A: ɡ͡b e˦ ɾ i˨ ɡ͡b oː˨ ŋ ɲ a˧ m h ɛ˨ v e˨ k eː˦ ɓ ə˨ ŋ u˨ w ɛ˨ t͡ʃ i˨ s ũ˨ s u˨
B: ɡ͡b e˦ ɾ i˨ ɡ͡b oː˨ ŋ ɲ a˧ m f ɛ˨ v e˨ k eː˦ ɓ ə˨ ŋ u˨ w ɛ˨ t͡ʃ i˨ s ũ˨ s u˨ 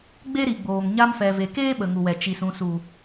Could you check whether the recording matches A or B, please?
B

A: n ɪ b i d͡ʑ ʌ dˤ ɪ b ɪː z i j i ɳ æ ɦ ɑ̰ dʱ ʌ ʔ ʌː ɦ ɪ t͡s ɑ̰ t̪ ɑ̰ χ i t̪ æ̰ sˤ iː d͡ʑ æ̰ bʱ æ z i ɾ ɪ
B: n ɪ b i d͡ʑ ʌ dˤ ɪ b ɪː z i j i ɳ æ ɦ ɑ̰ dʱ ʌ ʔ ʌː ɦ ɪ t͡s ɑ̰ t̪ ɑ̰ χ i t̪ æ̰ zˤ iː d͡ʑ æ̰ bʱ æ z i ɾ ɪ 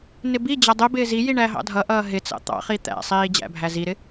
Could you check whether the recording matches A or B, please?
A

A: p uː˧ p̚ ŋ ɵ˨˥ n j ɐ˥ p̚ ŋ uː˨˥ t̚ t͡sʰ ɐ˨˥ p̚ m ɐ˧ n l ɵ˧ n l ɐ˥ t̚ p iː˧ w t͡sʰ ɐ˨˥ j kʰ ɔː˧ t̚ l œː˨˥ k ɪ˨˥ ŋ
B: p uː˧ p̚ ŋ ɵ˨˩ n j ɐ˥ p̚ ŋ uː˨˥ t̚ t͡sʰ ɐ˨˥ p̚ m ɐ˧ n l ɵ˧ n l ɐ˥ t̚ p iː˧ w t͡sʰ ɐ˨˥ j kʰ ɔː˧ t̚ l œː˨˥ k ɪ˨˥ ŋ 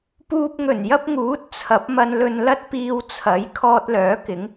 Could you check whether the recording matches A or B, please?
B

